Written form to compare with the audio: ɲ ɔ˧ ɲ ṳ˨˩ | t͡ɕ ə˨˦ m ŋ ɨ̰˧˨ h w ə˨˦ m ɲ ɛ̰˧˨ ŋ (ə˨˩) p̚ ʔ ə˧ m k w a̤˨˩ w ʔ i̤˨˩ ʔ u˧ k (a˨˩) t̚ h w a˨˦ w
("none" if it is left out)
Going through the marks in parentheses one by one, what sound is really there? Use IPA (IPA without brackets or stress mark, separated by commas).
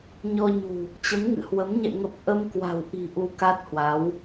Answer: ə˨˩, a˦˥